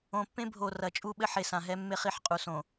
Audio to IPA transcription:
õ˨ pː ẽ˦ bʱ o˨ r ɐ˨ t͡ʃʼ u˦ ɓ ɘ˦ ħ e˨ s ã˨ ɦ ɛ˦ mː e˦ χ i˨ ħ qʼ u˨ s õ˨

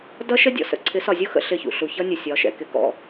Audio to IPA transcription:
d ʌ˦ ʃ ə˦ dʲ ɔ̰˨ s ə̰˦ ǀʰ ɪ˨˦ s ɒ˨ zʲ u˦ x ə̰˦ ɬ ɪ˦˨ ç ṵ˨ ɬ u˨ ç ʌ˦ nʲ ʊ˨ sʲ ɒ˨˦ ʃ ɛ̰˨ k ɪ˨ k ɔ̰˨

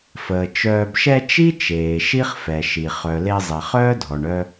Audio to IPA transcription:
f əː˩ t͡ʃ œː˨ b ʃ ɛ˦ t͡ʃ i˥ t͡ʃ eː˩ ʃ i˥ χ f ɛ˩ ʃ i˩ χ œ˩ l e˦ zˤ ɛ˩ χ œː˥ dʱ ɔ˩ ɳ œ˦

